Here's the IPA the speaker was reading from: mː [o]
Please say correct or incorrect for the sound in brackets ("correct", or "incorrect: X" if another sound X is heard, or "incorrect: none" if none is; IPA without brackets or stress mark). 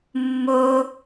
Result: correct